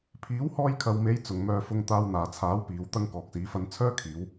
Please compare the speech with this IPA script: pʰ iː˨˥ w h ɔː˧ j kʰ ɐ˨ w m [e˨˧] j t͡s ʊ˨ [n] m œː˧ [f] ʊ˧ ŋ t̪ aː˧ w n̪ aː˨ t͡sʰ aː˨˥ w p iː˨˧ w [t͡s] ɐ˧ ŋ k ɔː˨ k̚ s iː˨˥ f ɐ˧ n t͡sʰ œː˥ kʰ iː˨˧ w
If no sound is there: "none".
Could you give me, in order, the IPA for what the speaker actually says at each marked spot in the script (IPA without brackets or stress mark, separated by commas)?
e˨˧, ŋ, f, t̪